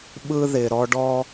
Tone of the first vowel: high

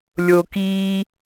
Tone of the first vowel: low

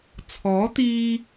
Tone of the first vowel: rising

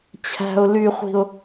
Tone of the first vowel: low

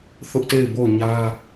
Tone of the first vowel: high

